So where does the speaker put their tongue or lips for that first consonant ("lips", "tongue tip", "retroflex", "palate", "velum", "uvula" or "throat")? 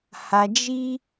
throat